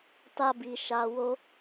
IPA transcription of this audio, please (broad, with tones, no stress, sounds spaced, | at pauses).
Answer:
t a˧ b i˨ ʃ a˧ w o˦